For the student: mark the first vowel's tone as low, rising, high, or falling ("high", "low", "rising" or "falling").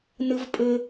high